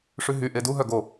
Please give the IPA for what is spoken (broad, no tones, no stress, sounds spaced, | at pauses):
ʂ ʉ ɦ y ʔ e d u ɦ œ ɡ o